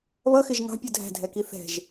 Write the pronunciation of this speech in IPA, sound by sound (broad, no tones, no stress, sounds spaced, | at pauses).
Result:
β ʌ x ɪ ʒ ŋ ɑ̤ pʲ u dʱ æ̤ dʱ ɛ k i θ ɛ̤ ʒ